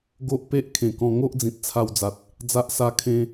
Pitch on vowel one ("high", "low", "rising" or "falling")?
high